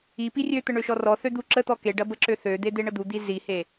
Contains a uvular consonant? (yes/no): no